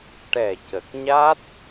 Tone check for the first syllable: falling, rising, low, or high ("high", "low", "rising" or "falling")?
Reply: low